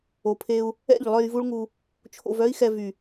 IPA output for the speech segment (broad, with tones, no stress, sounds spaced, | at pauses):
o˨ pʰ e˧ u̯ | ɛ̰˦˨ ʎ lˠ œ˧ j v u˦ ɭ ŋ u˧ | t͡ʃʰ o̰˧ v œ˦ i̯ x ɛ˧ v y˨